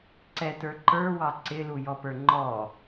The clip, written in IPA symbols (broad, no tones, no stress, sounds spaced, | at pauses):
ǀ ɛ t ə˞ ǃ ə˞ w ɑ ǀ ɪ l u j ɔ p ə˞ ŋ͡ǃ ɔ